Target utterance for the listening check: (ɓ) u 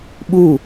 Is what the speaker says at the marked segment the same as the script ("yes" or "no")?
yes